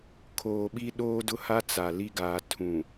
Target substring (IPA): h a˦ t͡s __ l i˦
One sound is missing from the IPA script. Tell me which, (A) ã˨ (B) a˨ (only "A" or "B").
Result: B